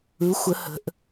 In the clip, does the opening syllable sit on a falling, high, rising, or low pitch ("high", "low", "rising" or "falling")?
rising